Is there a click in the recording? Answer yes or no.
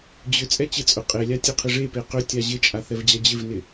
no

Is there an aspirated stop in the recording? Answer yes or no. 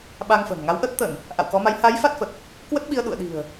no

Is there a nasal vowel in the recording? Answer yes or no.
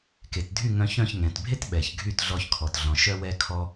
yes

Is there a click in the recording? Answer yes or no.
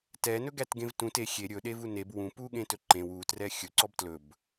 yes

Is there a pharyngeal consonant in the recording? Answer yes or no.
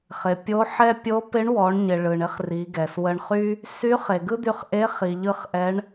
yes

